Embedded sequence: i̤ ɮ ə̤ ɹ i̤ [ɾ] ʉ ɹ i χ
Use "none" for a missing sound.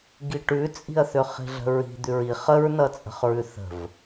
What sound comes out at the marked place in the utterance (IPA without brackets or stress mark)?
d̪